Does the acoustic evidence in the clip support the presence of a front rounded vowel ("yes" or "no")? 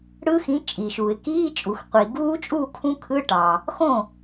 no